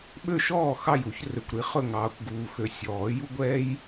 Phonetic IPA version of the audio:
ɓ ø˥˨ ʃ ɔː˥˨ x ɑ˥˨ j u˨˩˦ ç r ø˨ kʷ ɾ i˨˦ χ ɵ˥˨ ŋ ɑː˨ kʷ ɡ uː˨ x ø˨ sʲ ɔː˨˩˦ j u˥ ɡʷ ɛː˥ j

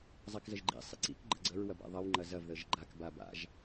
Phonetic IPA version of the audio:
zˤ a k z ə ʒ ɡ͡ǃ ḭ sˤ ḭ ǀ ḭ k ɡ͡ǃ ə ɡ͡ǀ ə ɹ w ɐ b a̰ ðˤ ɐ w ŋ͡ǃ ɐ z ɐ v ð ə ʒ ɡ͡ǃ a k b a b a̰ ʒ

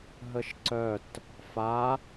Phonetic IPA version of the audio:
ɦ ə ʃ ǀ œ t | f a

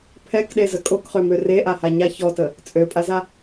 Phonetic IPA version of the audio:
pʰ ɛ k ɗ e z ə kʼ o k χ ø m ø r e ʔ a h a ɲ a ç ɔ t ə | t͡sʼ ø pʼ a z a

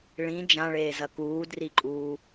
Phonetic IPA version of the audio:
ɭ ĩ d͡ʒ ã ɭ eː z ɐ k uː d r i ǃʼ uː

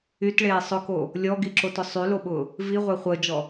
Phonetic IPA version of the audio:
y t ɭ eː sˤ ʊ k o | lʲ ɔ ɡ i ǁ o t ʊ sˤ y l o ɓ ʊː | v i ʁʷ e χʷ əː d͡ʒ ɔ

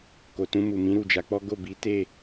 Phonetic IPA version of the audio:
k o˨ t ũ˧ m u˨ m ĩ˨˦ ɾ u˦˨ d͡ʒ a˨˦ k͡p ɔ˦ ɡ o˦˨ b i˨˦ t e˦˨

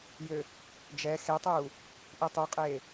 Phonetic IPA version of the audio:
j ø | d͡ʒ ɛ x e tˤ uː | ʔ i tˤ u qʼ eː

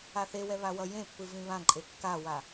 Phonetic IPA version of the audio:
a θ e w ɛ β a w ʌ j ẽ pː ɯ v ĩ β ã ǃʼ e kː a w a

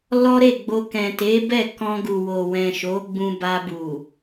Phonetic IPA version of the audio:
l ɔ˦ ɾ e˦˨ ɡ͡b o˧ k ɛ̃˨ t e˨˦ b ɛ˦˨ k ɔ̃˧ ɡ u˨ w o˨ w ɛ̃˨ ʃ o˨˦ ɡ͡b ũ˧ b a˧ b u˨

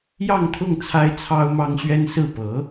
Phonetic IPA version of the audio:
j ɑ˥˧ ŋ t̪ʰ ʊ˥˩ ŋ t͡sʰ a˥ ɪ̯ t͡sʰ ɑ˥ ʊ̯ m ɑ˥ ŋ ɕ ɥ ɛ˥ n s ɹ̩˥˩ p ɤ˧˥

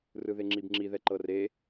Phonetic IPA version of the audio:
r ɯ ð e ŋ͡ǁ i b ŋ͡ǁ i ð ɛ ǃ ɤ r e

